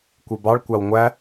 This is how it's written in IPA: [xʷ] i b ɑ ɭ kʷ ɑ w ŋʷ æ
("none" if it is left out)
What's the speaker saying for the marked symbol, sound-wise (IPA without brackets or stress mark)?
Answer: kʷ